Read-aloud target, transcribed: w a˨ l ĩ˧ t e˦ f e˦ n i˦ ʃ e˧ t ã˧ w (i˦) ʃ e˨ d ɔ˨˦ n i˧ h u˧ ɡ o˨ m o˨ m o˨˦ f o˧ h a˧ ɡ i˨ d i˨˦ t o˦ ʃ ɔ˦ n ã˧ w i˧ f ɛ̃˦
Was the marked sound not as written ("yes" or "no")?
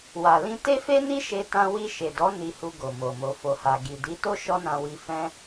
yes